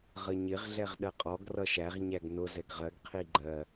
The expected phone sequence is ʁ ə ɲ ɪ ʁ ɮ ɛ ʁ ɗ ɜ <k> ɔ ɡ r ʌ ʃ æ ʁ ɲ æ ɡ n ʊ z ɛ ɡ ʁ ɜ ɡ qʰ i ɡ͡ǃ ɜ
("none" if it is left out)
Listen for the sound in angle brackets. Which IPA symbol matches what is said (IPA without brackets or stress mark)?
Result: qʼ